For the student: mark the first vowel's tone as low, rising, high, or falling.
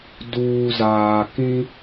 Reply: low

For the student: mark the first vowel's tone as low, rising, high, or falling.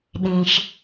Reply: low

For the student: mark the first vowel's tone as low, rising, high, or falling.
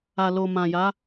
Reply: low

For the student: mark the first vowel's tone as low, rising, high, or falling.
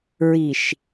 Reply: low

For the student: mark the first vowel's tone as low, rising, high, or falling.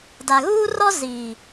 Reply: low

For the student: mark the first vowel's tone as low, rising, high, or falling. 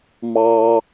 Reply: low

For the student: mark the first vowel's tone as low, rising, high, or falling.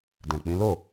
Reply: low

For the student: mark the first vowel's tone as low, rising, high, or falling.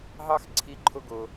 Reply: high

